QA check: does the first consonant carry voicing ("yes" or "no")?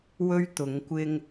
yes